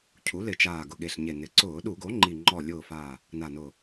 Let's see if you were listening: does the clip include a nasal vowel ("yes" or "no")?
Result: no